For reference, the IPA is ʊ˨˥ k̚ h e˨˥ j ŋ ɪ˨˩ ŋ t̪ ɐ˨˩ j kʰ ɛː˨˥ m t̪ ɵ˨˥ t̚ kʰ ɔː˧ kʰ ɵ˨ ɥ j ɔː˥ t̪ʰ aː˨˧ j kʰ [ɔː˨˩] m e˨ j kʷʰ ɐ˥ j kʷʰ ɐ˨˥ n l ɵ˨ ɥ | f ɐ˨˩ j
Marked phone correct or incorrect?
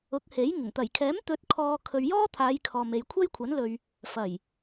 incorrect